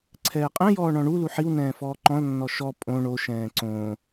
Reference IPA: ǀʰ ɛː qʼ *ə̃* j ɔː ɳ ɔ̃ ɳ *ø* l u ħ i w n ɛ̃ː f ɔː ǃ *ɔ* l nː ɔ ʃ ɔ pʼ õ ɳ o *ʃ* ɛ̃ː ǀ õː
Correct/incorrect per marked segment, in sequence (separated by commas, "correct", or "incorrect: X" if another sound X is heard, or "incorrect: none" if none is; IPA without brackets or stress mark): incorrect: ɛ̃, incorrect: u, incorrect: ɔ̃, correct